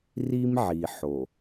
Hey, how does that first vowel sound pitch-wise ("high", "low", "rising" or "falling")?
high